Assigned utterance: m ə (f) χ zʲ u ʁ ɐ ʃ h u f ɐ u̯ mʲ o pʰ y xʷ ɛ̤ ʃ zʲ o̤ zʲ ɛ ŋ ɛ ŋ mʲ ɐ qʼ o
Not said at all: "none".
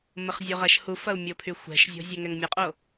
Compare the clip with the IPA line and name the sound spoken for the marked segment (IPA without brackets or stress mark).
none